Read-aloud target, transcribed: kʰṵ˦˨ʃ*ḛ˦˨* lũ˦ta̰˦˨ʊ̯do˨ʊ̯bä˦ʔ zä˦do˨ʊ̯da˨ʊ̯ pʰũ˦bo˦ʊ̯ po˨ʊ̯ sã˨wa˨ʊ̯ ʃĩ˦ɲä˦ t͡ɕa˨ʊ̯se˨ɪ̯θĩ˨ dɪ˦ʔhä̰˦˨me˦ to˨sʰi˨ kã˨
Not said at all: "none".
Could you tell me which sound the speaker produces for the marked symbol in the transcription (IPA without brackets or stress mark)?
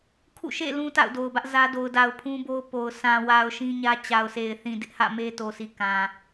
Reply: ḛ˦˨